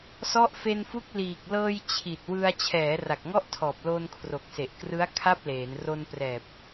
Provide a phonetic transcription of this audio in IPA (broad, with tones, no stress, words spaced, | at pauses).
sɔ˦˥ʔfe˧nfu˦˥k̚ liː˨˩k̚lɤː˧j t͡ɕʰi˨˩t̚wɯ˧a̯ t͡ɕʰɛː˩˦ ra˨˩k̚ŋɔ˥˩ʔtʰɔː˨˩p̚ lo˧nkʰro˨˩k̚se˨˩ʔkrɯ˦˥a̯ kʰa˥˩p̚ leː˩˦n ro˧nprɛː˨˩p̚